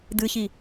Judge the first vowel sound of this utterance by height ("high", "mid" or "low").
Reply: high